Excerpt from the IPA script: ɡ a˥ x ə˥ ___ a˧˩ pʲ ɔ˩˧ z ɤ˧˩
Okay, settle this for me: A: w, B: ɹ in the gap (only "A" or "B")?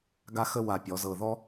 A